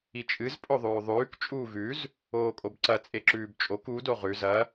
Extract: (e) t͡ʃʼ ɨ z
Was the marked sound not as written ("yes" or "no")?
yes